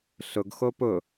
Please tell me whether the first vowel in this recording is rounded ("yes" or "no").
yes